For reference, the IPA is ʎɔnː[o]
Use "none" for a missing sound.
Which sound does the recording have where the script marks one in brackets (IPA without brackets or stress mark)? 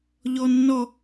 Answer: ɔ